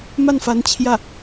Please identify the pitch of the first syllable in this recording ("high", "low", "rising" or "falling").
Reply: falling